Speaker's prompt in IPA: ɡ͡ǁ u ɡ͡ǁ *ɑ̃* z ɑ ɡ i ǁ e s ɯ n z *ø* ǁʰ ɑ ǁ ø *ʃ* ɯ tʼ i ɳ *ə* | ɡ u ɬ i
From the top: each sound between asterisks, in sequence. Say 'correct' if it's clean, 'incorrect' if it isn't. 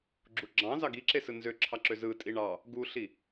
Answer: correct, correct, incorrect: z, incorrect: ɑ

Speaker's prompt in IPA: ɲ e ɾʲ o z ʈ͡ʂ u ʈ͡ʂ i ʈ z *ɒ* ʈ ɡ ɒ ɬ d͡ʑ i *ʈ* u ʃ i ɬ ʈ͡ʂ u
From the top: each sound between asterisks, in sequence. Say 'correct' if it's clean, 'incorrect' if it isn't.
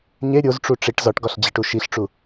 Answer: correct, correct

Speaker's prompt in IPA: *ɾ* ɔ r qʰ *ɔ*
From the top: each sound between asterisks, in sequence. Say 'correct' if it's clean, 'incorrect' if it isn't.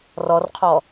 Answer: incorrect: r, correct

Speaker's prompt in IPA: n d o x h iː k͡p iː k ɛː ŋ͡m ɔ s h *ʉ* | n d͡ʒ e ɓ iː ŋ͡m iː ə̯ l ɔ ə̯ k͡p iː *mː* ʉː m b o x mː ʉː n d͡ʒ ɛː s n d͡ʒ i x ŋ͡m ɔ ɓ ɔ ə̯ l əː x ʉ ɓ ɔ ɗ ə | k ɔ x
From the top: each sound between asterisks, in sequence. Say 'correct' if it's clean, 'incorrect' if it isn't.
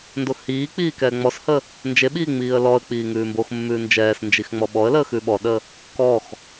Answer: incorrect: ə, incorrect: ŋ

